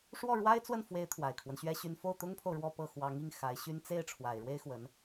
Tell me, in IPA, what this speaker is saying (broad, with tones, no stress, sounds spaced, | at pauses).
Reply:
ʂ w ɔ˥˩ ɻ w a˥ ɪ̯ t͡s w ə˥˩ n f w e˧˥ ɪ̯ t̪ʰ w a˨˩ ɪ̯ kʰ w ə˦ n ɕ ɥ ɛ˥ ɕ y˥ n f o˥˩ ʊ̯ t̪ ʊ˥ ŋ pʰ o˨ ʊ̯ ɻ w ɔ˥˧ p ɤ˥˩ x w ɑ˧˥ ŋ i˥˩ ŋ x a˧˥ ɪ̯ ɕ y˥ n t͡s e˥˩ ɪ̯ ʈ͡ʂʰ w a˨˩ ɪ̯ ɻ w e˥ ɪ̯ x w ə˧˥ n